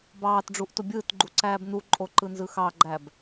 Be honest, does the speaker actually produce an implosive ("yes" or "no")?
no